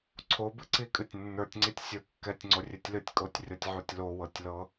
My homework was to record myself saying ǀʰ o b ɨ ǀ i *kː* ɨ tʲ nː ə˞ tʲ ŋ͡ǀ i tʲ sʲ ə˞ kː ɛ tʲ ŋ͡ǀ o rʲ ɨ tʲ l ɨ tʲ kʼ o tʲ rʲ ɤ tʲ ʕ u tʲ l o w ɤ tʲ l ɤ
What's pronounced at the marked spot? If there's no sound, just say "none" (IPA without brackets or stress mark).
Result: kʼ